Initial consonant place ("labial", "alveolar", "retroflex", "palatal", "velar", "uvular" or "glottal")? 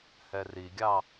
glottal